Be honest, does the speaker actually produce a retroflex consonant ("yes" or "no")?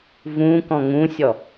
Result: no